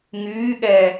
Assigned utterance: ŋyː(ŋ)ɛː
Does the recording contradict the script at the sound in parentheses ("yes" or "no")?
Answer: yes